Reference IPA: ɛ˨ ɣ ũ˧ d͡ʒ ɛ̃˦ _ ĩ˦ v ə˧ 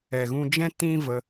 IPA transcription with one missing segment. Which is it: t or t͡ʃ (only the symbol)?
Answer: t